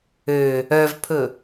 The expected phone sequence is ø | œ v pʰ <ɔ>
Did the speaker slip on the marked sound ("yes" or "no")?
yes